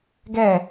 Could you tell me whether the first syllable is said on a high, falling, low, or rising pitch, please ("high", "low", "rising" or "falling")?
falling